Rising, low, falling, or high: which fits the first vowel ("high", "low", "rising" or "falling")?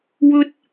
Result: high